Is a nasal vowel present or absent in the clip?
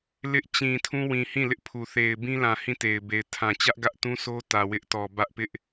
present